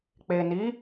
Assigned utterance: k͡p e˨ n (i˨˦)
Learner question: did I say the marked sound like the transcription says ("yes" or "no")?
yes